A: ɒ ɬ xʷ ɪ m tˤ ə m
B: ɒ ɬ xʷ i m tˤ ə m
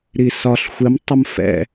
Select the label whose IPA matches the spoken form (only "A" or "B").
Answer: A